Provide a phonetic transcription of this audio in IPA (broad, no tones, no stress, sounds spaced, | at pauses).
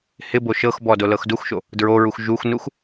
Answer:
h ɪ b o ʃ ɤ x b ɔ d o l ɤ x d u x ʃ o | d ɹ o ɹ u x ʒ u x n u x